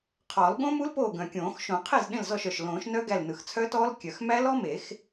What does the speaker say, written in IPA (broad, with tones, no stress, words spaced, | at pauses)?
qʰɔː˨˩˦lɠõ˦˥mu˦˥l poː˥˩ɡœ̃˨˩kʲõː˨˩˦x ʃõ˨˩˦qʰe˥˩z ɗẽ˥˩lzɔ˥˩ʃ œ˨˩ʃlõː˨˩˦ʃnœ˦˥ ɡæ˥˩lnɯ˨˩x t͡sʰœ˦˥tɔː˦˥l kʲœ˨˩x mæ˦˥lɔ˦˥me˨˩˦x